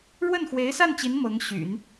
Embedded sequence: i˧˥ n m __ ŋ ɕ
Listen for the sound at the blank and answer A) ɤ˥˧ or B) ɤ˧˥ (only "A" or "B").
B